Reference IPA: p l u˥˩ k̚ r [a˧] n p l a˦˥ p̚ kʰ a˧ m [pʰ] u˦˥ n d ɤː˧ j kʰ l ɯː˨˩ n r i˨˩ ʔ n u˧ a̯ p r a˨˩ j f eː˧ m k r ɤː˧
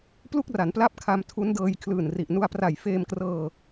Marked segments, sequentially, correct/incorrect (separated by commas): incorrect, incorrect